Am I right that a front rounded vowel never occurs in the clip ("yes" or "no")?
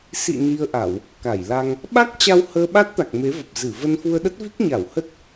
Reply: yes